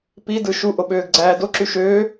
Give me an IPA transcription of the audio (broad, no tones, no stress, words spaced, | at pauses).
pidɯ ʃuʔoɓøːɡɡ͡ǀæː doǁy ʃøː